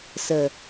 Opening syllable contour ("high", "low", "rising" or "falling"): low